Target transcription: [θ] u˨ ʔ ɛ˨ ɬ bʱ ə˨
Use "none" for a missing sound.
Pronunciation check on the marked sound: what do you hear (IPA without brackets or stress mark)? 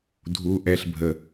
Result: dʱ